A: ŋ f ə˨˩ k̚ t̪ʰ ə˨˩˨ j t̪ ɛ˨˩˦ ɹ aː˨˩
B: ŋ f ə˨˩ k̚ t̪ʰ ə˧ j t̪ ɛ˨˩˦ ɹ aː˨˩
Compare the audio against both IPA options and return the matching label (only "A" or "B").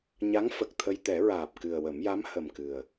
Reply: B